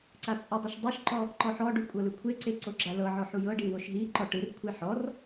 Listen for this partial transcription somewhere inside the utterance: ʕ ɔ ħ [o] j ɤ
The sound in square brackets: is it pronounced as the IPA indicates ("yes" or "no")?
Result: no